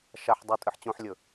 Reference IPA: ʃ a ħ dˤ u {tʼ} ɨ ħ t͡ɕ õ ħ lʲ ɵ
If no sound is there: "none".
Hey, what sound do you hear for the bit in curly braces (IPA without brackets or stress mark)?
tʼ